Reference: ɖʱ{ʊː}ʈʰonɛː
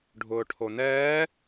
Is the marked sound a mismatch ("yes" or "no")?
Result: no